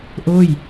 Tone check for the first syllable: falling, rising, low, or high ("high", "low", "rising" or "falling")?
falling